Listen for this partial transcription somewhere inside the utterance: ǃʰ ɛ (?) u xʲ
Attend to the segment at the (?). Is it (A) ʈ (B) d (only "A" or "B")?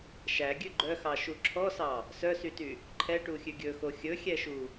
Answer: A